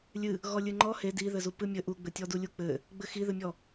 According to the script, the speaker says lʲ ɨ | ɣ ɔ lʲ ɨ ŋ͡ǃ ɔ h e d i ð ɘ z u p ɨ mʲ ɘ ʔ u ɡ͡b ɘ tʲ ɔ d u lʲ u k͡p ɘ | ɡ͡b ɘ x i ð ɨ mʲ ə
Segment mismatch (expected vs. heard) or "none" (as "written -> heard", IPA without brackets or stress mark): ə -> ɔ